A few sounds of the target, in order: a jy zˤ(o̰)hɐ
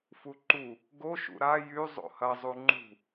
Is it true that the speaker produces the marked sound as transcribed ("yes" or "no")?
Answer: yes